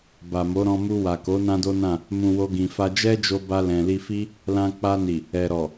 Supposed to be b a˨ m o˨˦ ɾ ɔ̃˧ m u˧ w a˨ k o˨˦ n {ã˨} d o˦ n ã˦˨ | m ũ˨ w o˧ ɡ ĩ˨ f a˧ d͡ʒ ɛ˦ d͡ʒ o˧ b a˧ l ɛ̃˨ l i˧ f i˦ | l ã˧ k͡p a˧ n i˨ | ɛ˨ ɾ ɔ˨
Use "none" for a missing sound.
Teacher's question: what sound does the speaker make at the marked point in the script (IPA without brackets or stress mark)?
ã˦